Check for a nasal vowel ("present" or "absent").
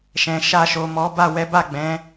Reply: present